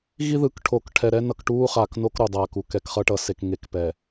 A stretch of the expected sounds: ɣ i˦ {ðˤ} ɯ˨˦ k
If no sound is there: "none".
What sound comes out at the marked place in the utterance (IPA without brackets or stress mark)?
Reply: ð